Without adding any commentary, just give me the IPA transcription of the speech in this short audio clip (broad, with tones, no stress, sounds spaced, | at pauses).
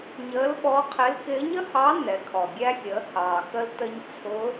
ɲ əː˧˥ l ɓ ɔ˧˥ qʰ ɪ˧˥ l k ɪː˧˥ ɲ ə˥ h ɑ˧˥ n ɛ˩˧ kʰ ɔ˩ ɡʲ æ˧ xʲ əː˩˧ h ɑː˩ x ə˧ l t ə˧ ɲ t͡sʰ ʊ˧˥